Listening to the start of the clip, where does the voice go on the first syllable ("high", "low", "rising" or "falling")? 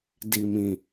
low